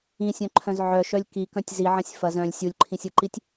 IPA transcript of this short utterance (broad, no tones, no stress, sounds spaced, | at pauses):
ĩ sʲ œ̃ ǃʰ œ̃ z ʕ œ ʃ œ lʲ k i k œ̃ tʲ z i ʕ ɐ̃ sʲ f ɐ z œ̃ lʲ sʲ u lʲ ǃʰ ĩ sʲ ɯ ǃ i tʲ